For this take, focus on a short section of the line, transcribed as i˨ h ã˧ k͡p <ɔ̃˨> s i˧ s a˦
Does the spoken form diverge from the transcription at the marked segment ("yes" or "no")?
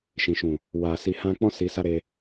yes